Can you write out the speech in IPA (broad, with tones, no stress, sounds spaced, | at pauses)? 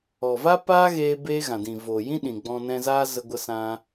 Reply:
ɔ˨ v a˦ p aː˦ ɣ eː˧ b e˧ ɣ ã˨ d ĩ˨ v o˨ j ĩ˦ ɗ ĩ˨ ɡ͡b ɔ̃˧ n ɛ̃˧ z aː˦ z ə˧ ɡʷ ə˧ s ã˧